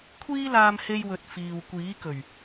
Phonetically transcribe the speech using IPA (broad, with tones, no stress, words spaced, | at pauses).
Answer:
kʷʰiː˥laː˧mhe˧jwɵ˨t̚ fiː˨wkʷiː˨˥kɵ˨˩ɥ